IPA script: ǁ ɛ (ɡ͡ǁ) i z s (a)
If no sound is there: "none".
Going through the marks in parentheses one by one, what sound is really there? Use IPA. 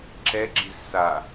ɡ͡ǁ, a

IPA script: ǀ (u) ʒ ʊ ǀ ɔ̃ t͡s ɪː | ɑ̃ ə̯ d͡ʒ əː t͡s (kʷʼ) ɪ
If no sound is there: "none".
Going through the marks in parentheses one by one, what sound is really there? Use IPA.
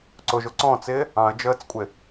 ʊ, kʷʼ

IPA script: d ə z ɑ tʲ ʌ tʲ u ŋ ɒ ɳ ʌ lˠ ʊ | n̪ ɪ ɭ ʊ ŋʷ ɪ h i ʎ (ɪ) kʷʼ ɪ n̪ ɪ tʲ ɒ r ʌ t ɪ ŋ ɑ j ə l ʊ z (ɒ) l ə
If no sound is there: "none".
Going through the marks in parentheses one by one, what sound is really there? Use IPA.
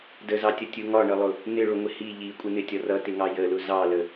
i, ɑ

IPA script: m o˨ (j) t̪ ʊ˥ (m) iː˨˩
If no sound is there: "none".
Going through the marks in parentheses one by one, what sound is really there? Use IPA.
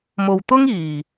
w, ŋ

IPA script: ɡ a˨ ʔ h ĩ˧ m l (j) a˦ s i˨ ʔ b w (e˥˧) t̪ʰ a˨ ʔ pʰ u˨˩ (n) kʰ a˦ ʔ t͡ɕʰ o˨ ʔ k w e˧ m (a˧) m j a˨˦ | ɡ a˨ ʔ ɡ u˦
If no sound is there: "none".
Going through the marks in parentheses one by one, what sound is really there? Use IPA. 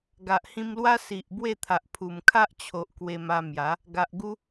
w, e˥˧, m, a˧

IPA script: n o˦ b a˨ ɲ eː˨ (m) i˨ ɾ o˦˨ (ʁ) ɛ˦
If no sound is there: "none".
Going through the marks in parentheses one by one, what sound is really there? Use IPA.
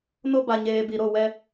b, w

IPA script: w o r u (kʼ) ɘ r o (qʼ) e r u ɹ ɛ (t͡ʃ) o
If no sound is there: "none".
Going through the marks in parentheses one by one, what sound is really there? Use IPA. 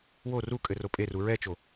kʼ, pʼ, t͡ʃ

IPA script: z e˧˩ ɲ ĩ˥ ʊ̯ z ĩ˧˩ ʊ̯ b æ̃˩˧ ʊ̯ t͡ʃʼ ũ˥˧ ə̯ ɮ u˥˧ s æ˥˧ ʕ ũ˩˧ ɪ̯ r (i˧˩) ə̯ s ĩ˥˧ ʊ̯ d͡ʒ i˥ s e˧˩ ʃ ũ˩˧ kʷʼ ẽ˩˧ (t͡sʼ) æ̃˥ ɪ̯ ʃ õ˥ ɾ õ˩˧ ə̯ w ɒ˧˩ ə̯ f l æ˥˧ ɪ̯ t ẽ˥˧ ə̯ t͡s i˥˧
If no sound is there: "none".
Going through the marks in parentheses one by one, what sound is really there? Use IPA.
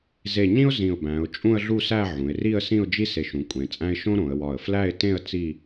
i˥˧, t͡sʼ

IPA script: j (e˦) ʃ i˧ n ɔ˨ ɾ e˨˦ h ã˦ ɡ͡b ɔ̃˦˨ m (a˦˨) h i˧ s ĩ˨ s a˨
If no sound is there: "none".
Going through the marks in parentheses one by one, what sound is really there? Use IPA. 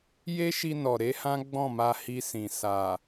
e˦, a˧

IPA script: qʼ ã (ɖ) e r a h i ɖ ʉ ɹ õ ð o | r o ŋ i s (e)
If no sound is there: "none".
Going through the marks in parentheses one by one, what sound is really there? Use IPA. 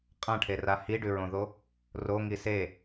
ʈʰ, e

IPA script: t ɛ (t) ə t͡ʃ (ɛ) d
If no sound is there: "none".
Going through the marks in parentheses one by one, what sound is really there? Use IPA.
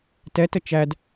t, æ

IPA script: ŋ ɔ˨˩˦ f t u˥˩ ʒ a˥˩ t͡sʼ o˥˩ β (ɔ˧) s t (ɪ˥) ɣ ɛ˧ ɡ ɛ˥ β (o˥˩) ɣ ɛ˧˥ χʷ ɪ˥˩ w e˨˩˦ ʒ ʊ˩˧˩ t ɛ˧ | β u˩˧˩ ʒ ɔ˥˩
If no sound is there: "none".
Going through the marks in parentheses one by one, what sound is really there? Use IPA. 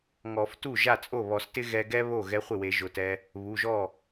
ɔ˨˩˦, ɪ˥, o˥˩

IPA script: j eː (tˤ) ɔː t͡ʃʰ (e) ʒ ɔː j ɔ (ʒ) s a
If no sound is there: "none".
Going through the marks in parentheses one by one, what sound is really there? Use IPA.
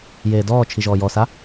d, i, none

